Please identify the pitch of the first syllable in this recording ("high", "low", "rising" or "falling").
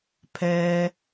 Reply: low